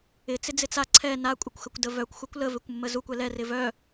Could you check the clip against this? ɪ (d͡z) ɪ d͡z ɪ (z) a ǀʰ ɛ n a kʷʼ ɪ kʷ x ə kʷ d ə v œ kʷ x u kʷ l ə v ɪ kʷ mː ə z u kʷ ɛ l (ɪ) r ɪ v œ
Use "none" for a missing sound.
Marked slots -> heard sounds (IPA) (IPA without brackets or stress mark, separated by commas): t͡s, t͡s, ɛ